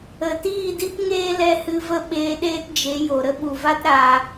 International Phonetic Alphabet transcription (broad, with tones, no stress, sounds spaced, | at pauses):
ə˨ t iː˦˨ d i˦ p ŋ eː˦ l ɛ˦ h ɨ˧ v ə˦ ɓ eː˧ ɗ eː˦ t d͡ʒ e˨˦ j o˨ ɾ ə˦ ɓ u˨ v a˦ t ɾ a˧